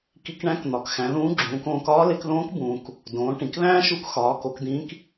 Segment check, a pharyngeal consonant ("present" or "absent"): absent